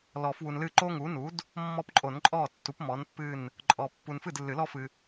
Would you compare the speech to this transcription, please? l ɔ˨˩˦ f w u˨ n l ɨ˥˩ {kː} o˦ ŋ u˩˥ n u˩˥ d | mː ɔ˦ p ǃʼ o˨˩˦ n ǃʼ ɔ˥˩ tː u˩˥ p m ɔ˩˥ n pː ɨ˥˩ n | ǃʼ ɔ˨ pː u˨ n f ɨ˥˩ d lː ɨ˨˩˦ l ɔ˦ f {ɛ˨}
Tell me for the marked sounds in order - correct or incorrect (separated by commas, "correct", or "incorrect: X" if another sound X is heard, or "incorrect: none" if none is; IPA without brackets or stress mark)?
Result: incorrect: ǃ, incorrect: ɨ˨